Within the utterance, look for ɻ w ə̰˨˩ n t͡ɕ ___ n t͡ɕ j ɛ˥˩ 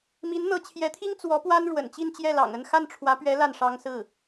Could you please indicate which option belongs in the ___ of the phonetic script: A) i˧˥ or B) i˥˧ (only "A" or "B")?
B